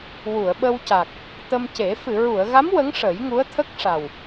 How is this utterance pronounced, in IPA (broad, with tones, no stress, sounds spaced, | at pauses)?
w u˨˩˨ ə̯ ɓ ə˧ w c a˨˩ k̚ | t̪ ə˧ m c e˨˩˦ f ɨ˨˩˨ ɹ u˨˩˨ ə̯ ɣ a˧˥ m w ə˧˥ ŋ ʂ ə˨˩˦ j ŋ u˧˥ ə̯ t̪ʰ ə˦˥ k̚ ʂ a˨˩ w